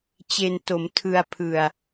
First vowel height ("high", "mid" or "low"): mid